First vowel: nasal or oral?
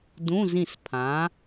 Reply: nasal